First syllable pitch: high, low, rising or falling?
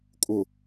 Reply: low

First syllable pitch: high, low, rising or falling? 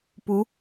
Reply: rising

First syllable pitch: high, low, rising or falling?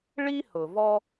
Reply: high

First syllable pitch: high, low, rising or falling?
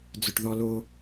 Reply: low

